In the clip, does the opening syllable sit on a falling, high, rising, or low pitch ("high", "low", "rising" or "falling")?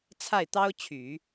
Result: falling